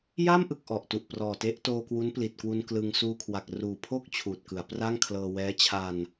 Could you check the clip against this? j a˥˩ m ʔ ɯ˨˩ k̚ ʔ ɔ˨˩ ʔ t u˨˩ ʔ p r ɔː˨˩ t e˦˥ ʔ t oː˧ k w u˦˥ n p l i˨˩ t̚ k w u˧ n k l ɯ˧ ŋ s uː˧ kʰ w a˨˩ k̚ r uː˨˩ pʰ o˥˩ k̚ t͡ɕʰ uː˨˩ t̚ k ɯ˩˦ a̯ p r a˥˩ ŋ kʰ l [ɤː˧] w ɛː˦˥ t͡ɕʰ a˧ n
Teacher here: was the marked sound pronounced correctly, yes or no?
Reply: yes